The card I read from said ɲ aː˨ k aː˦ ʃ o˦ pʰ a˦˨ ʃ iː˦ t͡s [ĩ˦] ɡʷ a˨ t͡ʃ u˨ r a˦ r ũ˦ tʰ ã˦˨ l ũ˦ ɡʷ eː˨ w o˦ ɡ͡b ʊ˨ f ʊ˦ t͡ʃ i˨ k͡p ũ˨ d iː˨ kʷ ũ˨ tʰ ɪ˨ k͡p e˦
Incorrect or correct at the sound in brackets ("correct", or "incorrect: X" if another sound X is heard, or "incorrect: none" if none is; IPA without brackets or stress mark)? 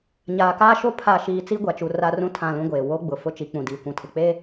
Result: incorrect: i˦